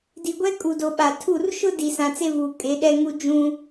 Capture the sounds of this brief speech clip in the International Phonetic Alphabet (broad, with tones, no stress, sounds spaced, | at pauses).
d i˨ ɡʷ ɛ˦ kʼ u˨ d o˨ ɓ a˨ tʰ u˦˨ r ʃ ʊ˦ d i˨ s ã˨ t͡s e˦ v uː˨ kʼ e˨˦ ɗ ɛ˦ ŋ u˦ d͡ʒ ũ˦